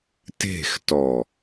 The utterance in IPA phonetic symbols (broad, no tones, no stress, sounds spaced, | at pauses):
t e̤ x t ɔ